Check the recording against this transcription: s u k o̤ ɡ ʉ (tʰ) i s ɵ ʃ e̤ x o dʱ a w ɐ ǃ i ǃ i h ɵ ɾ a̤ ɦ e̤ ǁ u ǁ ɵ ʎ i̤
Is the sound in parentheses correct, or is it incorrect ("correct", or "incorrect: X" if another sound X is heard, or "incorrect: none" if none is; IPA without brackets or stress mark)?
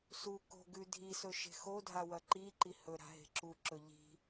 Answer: incorrect: dʱ